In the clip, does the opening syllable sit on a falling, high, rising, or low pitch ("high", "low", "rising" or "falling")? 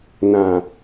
low